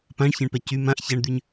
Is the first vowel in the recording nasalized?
yes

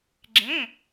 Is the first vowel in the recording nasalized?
yes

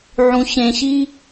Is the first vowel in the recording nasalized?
yes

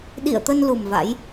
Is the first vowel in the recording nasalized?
no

